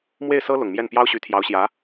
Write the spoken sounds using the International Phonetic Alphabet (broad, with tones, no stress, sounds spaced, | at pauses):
m w e˥˩ ɪ̯ s ɤ˥ l ʊ˨˩ ŋ m j ɛ˥˩ n p j ɑ˥ ʊ̯ ɕ y˧˥ t̪ʰ j ɑ˧˥ ʊ̯ ɕ j ä˧˥